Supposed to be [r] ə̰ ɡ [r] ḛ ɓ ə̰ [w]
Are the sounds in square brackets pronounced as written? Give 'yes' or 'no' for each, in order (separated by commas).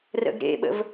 yes, no, no